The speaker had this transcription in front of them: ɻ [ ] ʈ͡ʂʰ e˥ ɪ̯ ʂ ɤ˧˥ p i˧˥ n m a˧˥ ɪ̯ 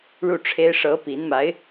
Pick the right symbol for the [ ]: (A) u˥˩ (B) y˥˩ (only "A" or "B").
A